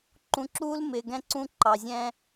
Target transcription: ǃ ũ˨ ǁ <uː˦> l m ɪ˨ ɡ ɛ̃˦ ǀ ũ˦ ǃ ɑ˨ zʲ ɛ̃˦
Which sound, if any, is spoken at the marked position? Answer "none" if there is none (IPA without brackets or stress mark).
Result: uː˦